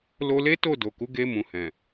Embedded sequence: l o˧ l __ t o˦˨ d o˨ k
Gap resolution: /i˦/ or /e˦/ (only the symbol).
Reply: e˦